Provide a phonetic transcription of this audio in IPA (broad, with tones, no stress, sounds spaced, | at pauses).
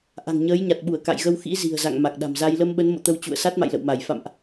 ʔ a̤˨˩ ŋ ɲ əː˨˦ j ɲ a˨˩ t̚ ɓ u˧˩ ə̯ k a̰˧˨ j ɣ ə˧ w x ḭ˧˥ z i̤˨˩ ə̯ z a̰˧˨ ŋ m a˨˩ k̚ ɗ a̤˨˩ m z a˧ j l ə˧ m ɓ ə˨˦ n m o̰˧˨ t̪ ə˧ w t͡ɕ ṵ˧˨ ə̯ s a˦˥ t̚ m a̰˧˨ j l ə̰˧˨ w m a˧˩ j f a̰˧˨ m ʔ